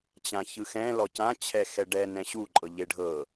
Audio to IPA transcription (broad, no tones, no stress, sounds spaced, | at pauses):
t͡ɕ ã ç ɯ x ɛ̃ l ɔ c ã t͡ɕʰ ɛ x ɛ ɖ ɛ n ɛ̃ ɕ u ǃʼ ɤ ʎ e ɖʱ ɤ